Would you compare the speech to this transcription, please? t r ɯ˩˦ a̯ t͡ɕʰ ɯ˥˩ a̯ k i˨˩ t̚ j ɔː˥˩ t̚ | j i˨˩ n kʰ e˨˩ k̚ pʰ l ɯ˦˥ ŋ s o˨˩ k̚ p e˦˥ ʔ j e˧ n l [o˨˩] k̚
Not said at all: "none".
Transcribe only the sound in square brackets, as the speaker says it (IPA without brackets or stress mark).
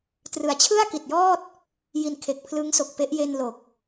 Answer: o˨˩